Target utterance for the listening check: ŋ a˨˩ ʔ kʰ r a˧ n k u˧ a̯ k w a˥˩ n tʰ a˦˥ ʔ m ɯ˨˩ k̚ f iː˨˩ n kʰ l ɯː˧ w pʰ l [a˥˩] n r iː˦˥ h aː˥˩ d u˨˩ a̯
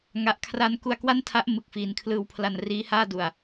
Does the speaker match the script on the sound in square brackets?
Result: no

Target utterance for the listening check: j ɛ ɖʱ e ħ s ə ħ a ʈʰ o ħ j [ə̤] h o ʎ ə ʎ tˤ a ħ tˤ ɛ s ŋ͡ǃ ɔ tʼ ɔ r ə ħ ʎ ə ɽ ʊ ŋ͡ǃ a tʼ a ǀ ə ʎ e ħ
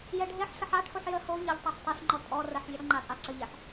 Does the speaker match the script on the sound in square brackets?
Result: no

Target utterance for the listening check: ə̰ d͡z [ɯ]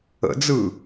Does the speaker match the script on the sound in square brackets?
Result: yes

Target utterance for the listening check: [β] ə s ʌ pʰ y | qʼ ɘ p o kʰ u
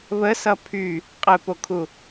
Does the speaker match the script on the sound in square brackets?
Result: yes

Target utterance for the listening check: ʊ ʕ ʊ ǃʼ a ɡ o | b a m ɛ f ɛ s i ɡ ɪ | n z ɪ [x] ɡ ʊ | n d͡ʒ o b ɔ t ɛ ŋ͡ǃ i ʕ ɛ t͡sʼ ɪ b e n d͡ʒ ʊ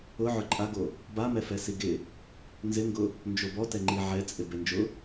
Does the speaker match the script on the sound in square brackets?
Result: no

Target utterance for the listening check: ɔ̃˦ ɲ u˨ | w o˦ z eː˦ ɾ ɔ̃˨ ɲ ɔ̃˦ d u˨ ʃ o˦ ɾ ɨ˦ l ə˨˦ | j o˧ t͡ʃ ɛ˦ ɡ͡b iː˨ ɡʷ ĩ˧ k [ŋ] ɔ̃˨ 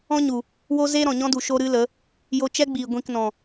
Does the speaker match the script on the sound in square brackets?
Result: no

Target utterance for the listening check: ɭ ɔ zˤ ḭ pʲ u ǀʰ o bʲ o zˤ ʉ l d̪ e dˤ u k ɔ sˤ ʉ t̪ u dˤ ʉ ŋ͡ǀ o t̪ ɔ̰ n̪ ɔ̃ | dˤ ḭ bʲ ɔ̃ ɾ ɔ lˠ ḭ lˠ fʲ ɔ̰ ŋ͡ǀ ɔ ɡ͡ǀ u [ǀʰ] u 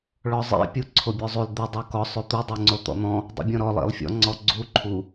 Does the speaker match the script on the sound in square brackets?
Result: no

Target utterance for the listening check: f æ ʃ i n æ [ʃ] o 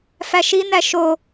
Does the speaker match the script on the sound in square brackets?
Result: yes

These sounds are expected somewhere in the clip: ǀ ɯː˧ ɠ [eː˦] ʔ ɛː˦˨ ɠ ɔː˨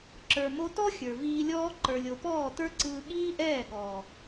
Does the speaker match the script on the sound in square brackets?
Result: no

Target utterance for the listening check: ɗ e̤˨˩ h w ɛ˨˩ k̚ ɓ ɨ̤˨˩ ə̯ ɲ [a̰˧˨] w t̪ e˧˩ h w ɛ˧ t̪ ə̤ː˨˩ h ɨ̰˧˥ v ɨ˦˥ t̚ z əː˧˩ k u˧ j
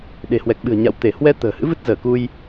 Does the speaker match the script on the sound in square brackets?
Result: yes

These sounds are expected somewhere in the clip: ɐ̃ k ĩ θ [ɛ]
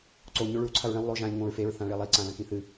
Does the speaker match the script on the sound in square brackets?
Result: no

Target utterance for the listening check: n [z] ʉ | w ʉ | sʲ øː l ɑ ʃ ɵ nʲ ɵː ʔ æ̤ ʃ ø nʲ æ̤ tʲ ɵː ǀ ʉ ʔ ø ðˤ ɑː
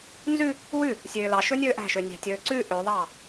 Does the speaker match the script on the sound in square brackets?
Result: yes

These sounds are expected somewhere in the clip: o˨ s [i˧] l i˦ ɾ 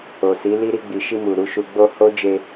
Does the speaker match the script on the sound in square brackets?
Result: no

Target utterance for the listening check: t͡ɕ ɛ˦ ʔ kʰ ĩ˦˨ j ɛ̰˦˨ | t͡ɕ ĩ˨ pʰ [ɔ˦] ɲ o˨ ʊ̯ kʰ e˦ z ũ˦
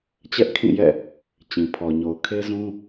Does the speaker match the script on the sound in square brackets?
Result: no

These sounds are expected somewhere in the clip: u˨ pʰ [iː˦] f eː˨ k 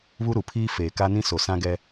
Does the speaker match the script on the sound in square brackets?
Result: yes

